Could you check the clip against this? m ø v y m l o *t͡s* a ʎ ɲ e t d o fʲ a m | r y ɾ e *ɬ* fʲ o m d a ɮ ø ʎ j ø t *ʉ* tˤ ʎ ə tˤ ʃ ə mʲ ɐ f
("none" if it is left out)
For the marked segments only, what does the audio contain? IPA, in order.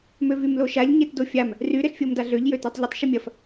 ʃ, ɬ, ø

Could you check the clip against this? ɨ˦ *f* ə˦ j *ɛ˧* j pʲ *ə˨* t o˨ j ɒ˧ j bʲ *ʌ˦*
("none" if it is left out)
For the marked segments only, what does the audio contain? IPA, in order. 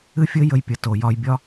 fʲ, ə˧, ə˨, ɒ˦

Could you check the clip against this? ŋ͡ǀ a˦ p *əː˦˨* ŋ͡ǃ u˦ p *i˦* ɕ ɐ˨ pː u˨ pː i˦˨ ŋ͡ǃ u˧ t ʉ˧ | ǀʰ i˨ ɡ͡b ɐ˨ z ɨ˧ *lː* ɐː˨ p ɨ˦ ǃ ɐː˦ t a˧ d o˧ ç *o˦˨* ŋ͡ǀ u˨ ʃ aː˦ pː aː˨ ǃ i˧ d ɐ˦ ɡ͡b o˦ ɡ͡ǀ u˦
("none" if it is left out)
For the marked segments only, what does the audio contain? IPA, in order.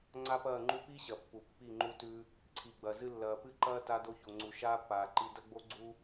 ɐː˦˨, i˦, lː, o˨

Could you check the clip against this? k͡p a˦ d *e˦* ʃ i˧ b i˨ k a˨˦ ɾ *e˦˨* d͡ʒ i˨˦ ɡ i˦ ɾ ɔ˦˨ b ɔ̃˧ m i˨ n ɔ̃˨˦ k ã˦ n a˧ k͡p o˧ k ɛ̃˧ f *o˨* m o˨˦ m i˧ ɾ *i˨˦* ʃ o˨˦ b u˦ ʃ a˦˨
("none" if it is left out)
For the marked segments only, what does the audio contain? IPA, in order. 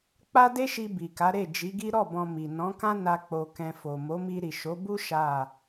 e˦, e˦˨, o˨, i˨

